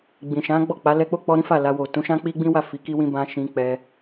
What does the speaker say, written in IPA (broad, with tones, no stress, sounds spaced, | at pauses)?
ɡ͡b ĩ˨ ʃ ã˨˦ ɡ͡b ɔ˦˨ k͡p a˨˦ l ɛ˧ k͡p o˦ k͡p ɔ˧ ɾ ĩ˦ f a˦˨ l a˧ w o˨ t ũ˨˦ ʃ ã˦ k͡p i˦ ɡ͡b ĩ˦ w a˦˨ f i˨˦ k i˦ w ĩ˦ b ã˧ ʃ ĩ˧ k͡p ɛ˧